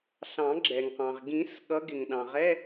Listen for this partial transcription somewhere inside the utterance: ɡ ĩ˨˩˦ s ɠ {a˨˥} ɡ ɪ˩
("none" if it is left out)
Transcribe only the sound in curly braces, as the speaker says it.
ʌ˨˥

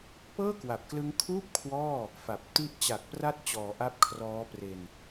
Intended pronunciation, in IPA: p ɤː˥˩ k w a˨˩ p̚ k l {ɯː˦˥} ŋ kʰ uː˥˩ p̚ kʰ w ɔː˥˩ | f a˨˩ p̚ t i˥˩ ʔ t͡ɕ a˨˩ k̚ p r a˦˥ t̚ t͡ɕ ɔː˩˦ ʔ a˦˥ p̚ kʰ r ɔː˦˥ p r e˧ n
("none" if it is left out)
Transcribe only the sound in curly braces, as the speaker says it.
ɯ˦˥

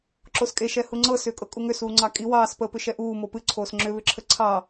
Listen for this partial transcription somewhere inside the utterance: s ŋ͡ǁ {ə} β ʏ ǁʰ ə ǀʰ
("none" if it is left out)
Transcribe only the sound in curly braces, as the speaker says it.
ʏ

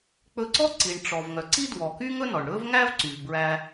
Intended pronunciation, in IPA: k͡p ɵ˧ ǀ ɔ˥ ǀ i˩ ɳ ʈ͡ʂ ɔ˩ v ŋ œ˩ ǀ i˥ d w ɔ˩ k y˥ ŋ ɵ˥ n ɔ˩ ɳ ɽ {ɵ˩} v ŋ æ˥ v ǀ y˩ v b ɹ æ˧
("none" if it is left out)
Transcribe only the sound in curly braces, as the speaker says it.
ɵ˥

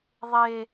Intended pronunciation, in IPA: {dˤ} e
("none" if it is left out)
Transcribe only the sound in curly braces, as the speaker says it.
ðˤ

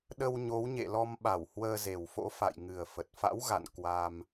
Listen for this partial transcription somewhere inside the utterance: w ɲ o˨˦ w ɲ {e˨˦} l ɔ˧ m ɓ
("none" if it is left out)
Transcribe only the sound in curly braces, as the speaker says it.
ḛ˧˨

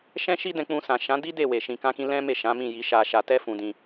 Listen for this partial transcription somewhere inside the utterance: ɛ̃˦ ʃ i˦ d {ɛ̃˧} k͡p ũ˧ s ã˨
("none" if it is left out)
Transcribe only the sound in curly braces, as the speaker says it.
ɛ̃˧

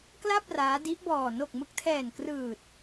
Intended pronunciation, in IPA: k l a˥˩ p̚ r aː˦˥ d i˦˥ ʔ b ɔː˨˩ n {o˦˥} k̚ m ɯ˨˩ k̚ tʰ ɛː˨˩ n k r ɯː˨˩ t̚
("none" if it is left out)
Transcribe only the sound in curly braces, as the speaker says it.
o˨˩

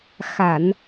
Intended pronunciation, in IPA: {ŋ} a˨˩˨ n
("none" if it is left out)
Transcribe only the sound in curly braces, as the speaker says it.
x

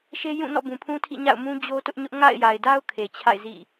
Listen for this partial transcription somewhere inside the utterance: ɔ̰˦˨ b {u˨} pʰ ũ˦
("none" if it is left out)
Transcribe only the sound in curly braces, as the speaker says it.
ũ˨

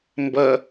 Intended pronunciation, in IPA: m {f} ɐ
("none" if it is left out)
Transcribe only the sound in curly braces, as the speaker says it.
b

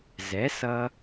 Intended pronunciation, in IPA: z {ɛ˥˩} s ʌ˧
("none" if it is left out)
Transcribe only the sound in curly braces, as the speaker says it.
ɛ˩˥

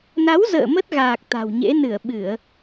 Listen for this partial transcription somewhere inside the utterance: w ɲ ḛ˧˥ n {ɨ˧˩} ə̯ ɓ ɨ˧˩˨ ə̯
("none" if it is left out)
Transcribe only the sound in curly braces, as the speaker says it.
ɨ˧˩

